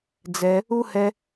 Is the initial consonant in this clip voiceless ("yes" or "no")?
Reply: no